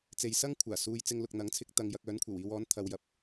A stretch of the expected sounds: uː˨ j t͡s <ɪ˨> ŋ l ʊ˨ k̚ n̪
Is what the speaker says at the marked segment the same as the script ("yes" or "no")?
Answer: no